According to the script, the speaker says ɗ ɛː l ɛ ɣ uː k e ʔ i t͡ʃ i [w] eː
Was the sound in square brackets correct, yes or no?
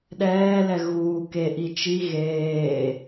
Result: no